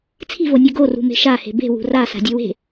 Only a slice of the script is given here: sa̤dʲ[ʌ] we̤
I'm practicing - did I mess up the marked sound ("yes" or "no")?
no